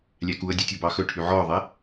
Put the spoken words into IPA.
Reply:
lʲ æ k u ə̯ dʲ ø tʲ ɔ b ɑ x ɵ ʈʰ y ʕ ɔ ʊ̯ ðˤ e

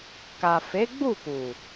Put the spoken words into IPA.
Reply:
k a˨ f e˨˦ ɡ͡b u˦˨ k u˨

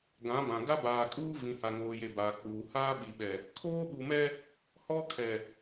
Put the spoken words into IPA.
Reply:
ɡ ã˨˦ b ã˨ ɡ a˦ b aː˨ kʼ uː˦ v ĩ˨ h a˨ ŋ oː˨ j e˨ b aː˨ k͡p uː˨ h aː˦ ɓ i˨ ɓ ɛ˨ | kʰ oː˦ ɓ u˨ m ɛ˦ | h ɔ˦ kʰ ɛ˨

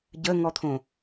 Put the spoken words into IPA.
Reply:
ɟ ə ŋ ɔ t̪ʰ õ

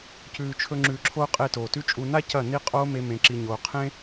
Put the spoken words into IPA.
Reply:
c ʉː˨ t͡ʃʰ ɵ˧ ŋ͡ǁ ʉː˨ ǁʰ oː˧ qʼ e˦˨ t oː˨ t ʉ˦ t͡ʃʼ u˧ n a˦ c ɐ˦˨ n i˦ qʼ oː˦ m e˧ m ẽ˨ ǁ i˨ ɲ oː˨ qʰ ẽ˦

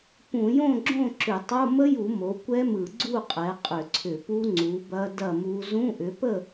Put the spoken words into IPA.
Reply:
p ũ˧˩˧ j õ˥˨ ɡ͡ǁ õ˥˨ ǁ ʏ˧˩˧ tˤ o˧˥˧ m ə˦˥ j u˧˩˧ m o˩˥ kʷ ɛ˦˥ m ɯ˧˩˧ ɡ͡ǀ u˥˨ qʼ ɛ˩˥ qʼ ʏ˧˩˧ ǀʰ ʏ˧˩˧ p u˦˥ ŋ͡ǀ u˩˥ b ɐ˦˥ d ɐ˥˨ m u˦˥ z ũ˧˥˧ ʔ ʏ˩˥ p ə˥˨

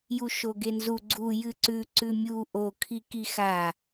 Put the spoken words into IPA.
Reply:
j u ʃ o ɡ e n z u ɡ͡ǀ u j ɨ ǀ ʉ ǀ ʉ mʲ u ʔ o kʰ i k i x a

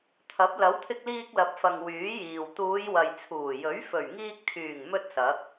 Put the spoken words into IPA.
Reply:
t̪ʰ ɐ˨˥ p̚ l ɐ˨˥ w t̪ʰ ɪ˧ k̚ l iː˧ k̚ l ɐ˨ p̚ f ɐ˨ ŋ w yː˨˥ j iː˨ w t̪ uː˨˧ j w ɐ˨ j t͡sʰ uː˨˩ j ɵ˨˥ ɥ f ɵ˨˩ ɥ ŋ iː˧ k̚ t̪ʰ yː˨˩ ŋ m ɵ˥ t̚ s ɐ˨˥ k̚

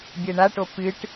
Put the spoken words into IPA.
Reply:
bʲ ɛ ɳ a ʈ o p ɨ ʈ

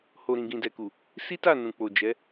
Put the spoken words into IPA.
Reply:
h o˨ ɾ ĩ˨ ɡ ĩ˨ d ɛ˨ k u˨ | s i˦ t a˦˨ n ũ˨ k͡p o˨ d͡ʒ ɛ˨˦

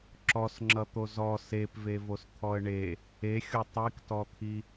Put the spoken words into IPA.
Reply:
ǁ ɔ s ŋ͡ǁ ʌ t̪ o z ɔ s e p v e v o s t̪ʰ ɔ ə̯ ɳ e | e xʲ o tˤ i k t ɔ t̪ʰ i

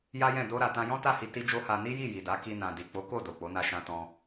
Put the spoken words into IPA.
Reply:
j a˦ j ɛ̃˦˨ d o˧ ɾ a˨ t ã˧ j ɔ̃˦ t a˦˨ h i˧ t i˦ d͡ʒ o˦ h a˧ n i˦ j i˦˨ j i˨ d a˨˦ k i˧ n ã˨ d i˨ k͡p o˨˦ k o˦˨ d o˨ k͡p o˨˦ n a˧ ʃ ã˧ t ɔ̃˧

